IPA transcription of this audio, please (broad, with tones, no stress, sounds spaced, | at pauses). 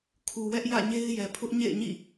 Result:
kʰ u˨ w ɛ˦ ʔ j ä̰˦˨ ɲ e˦ ɪ̯ j ɛ˨ pʰ ʊ˦ ʔ ɲ ḛ˦˨ ɪ̯ ɲ ḭ˦˨